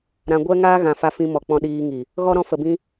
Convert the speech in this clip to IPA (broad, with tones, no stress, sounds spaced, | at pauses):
ɾ ã˧ ɡʷ ɛ˦ ŋ aː˦ ɣ ã˧ f a˧ f ĩ˧ m ɔ˨ k͡p ɔ̃˧ ɗ iː˧ ŋ i˨ | ɣ ɔ˦ ɾ ɔ̃˧ f ə˨ b ĩ˧